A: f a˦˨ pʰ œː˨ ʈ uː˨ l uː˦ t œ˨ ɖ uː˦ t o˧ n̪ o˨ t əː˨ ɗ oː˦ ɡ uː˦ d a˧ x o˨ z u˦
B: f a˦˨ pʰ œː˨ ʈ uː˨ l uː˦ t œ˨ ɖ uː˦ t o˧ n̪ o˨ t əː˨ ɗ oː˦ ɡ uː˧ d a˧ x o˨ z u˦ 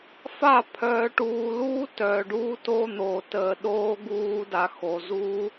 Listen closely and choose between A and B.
A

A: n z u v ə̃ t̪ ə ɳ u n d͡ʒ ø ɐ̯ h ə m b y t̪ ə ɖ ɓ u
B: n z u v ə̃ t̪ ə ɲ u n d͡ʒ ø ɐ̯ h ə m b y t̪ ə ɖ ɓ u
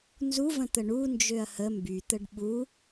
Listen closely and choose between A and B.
A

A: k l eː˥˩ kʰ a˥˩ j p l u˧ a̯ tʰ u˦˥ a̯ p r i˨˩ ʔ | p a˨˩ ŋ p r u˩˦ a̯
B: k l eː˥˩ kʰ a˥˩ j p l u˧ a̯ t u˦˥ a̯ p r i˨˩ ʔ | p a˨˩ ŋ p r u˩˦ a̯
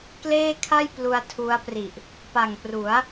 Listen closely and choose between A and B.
A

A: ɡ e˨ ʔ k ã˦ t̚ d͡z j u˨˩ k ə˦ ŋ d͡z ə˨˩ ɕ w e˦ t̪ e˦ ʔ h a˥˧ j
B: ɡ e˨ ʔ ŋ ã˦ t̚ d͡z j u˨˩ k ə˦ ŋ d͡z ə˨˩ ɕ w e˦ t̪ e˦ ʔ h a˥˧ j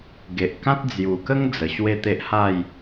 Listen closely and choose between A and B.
A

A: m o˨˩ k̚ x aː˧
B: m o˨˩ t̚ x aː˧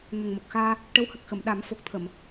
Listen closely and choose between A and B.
A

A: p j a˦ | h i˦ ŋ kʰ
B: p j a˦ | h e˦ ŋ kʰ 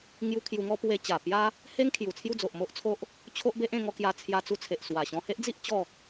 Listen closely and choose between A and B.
B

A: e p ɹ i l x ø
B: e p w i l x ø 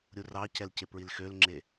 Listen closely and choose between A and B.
A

